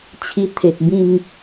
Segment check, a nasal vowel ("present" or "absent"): present